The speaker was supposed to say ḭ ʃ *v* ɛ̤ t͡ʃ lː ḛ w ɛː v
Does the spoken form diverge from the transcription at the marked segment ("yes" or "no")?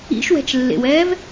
yes